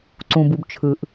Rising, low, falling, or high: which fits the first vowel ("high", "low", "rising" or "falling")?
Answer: low